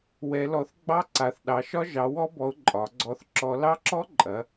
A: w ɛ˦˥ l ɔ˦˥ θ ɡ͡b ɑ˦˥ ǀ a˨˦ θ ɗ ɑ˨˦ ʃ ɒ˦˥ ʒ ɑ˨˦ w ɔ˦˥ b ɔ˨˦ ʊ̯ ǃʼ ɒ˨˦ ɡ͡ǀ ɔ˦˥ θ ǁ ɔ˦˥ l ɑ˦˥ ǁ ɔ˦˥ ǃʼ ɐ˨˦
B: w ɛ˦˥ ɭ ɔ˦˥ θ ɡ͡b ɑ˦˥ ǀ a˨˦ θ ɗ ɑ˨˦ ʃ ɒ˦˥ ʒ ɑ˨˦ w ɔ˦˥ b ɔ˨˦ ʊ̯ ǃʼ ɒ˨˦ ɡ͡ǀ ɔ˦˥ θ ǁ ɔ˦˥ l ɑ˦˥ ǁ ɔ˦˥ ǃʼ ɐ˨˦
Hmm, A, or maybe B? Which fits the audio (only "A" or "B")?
A